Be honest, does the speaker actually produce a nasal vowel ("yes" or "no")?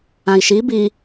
yes